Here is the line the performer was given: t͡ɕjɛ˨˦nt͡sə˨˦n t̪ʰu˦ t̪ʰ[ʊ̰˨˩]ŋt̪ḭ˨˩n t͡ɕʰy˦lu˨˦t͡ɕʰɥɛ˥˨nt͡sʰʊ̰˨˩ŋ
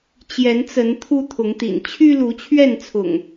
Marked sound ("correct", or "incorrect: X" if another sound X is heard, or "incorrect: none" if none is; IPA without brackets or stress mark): incorrect: ʊ˨˦